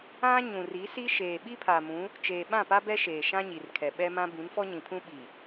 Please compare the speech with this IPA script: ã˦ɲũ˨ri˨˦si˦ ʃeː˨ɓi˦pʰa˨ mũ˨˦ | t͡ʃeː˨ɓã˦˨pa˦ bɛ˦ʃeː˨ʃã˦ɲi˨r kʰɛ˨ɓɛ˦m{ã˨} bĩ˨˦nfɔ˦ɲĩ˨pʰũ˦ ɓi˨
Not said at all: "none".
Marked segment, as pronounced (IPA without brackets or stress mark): ã˦